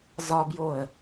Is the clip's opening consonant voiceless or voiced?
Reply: voiced